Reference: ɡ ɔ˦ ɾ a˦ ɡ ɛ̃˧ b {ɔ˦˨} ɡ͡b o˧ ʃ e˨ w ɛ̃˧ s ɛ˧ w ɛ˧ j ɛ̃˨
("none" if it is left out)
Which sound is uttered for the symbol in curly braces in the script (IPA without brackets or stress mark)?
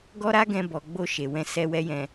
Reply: ɔ˨